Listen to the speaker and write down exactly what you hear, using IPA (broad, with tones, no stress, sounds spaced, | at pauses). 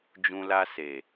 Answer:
d͡ʒ ũ˧ l a˧ s e˨